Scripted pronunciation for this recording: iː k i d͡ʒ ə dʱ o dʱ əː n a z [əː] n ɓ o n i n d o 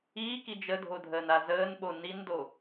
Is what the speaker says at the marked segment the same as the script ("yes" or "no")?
yes